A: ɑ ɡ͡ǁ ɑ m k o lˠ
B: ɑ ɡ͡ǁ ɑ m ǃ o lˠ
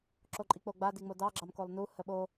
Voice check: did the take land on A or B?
A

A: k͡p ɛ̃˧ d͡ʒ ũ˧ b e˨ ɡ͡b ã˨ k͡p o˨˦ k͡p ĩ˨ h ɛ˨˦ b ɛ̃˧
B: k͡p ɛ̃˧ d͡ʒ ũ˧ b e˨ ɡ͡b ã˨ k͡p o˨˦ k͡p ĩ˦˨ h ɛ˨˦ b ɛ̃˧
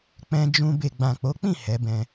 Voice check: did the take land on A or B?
B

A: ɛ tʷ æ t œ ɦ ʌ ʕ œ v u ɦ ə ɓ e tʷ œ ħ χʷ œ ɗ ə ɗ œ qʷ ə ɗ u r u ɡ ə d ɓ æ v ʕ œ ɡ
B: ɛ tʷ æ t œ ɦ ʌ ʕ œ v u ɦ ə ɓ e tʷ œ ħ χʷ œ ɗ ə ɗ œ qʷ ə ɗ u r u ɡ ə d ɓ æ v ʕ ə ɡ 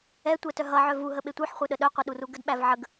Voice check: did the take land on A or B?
B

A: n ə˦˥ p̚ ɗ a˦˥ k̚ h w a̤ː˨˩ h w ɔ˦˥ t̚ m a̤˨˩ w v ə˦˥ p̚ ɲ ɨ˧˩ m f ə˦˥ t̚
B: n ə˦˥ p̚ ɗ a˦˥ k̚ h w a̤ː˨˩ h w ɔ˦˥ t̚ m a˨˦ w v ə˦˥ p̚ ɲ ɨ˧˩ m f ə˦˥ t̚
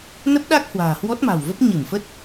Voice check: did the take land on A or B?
A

